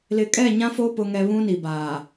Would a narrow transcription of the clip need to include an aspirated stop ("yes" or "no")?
no